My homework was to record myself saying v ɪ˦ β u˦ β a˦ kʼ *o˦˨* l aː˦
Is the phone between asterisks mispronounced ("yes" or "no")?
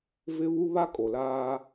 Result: yes